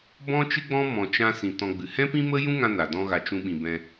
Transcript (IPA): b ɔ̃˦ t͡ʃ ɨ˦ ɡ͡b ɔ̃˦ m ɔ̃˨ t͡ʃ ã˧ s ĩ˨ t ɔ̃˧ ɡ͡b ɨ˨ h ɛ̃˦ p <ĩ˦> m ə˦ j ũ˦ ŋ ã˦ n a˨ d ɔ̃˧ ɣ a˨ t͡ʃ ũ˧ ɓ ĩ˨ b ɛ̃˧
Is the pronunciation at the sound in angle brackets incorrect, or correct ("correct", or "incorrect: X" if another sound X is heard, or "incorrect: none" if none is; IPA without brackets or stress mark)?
correct